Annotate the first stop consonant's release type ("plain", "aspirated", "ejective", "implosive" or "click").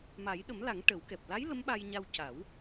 implosive